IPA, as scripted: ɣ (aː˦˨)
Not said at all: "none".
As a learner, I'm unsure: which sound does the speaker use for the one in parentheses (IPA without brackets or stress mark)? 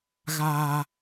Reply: aː˦